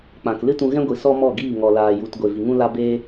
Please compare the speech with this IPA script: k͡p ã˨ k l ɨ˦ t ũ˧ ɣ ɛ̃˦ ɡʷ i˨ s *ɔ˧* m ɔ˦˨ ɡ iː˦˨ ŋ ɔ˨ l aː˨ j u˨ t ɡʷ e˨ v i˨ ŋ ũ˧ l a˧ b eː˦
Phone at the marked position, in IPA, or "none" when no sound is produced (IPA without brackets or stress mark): ɔ˦